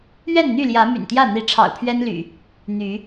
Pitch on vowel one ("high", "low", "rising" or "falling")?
falling